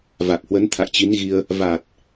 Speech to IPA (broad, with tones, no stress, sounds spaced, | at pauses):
v a˨˩ k̚ h w ə˨˦ n t̪ʰ a̰˧˨ j t͡ɕ i˨˦ n ɣ i˧ ə̯ | v a˨˩ t̚